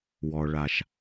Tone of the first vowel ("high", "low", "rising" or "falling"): low